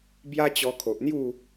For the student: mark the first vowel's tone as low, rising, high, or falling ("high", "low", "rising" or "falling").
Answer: high